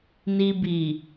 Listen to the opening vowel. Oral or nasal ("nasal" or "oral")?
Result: oral